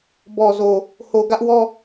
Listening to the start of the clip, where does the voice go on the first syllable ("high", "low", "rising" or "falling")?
low